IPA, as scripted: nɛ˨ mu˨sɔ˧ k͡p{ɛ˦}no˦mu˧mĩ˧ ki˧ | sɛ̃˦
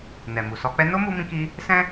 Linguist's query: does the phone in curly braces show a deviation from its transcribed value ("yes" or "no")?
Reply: yes